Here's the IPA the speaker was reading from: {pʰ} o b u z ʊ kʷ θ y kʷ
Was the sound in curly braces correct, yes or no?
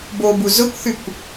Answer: no